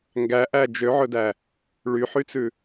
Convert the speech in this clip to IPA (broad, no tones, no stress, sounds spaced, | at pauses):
ŋ ɡ æ ʔ æ d͡ʒ ø ʕ ɵ d æ | ɭ y ħ y t͡s ʉ